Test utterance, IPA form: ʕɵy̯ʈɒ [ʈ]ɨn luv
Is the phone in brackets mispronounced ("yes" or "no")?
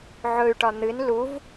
yes